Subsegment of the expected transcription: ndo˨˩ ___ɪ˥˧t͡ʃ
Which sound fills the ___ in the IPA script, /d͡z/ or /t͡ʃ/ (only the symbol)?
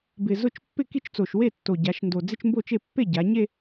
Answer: d͡z